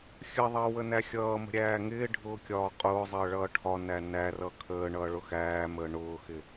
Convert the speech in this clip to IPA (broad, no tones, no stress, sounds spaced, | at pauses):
xʲ ə ðˤ əː w ə n æ xʲ ʌː m ə̤ ɾʲ æː ŋ ɪː ɖʱ ʊː kʲ ɒː qʼ ʊː zˤ əː ɭ ʌː ʈʰ ɒ n æ n æ r ʌ kʰ əː ɳ ʌː ɭ ʊ x æː m əː ɳ ʊː x ɪ